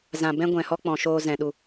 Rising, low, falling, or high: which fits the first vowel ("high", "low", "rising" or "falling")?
low